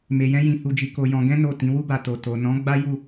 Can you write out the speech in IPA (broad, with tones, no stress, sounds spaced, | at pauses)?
m e˧ j ɛ̃˦ j ĩ˧ h u˧ d͡ʒ i˧ k o˧ j ɔ̃˧ ɡ ɛ̃˦ n o˦˨ t ĩ˨˦ w u˦ b a˧ t o˨ t o˨ n ɔ̃˨˦ ɡ͡b a˦ j u˦˨